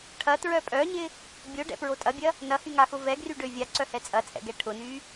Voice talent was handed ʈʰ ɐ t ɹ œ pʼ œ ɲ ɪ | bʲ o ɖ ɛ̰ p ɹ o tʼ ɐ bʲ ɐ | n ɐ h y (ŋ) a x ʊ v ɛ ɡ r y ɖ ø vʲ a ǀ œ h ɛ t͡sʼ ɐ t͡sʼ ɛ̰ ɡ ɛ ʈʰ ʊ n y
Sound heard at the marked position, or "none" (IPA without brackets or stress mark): ŋ